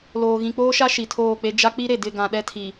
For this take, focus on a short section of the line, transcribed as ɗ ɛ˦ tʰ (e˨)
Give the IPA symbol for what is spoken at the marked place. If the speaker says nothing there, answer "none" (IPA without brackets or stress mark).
i˨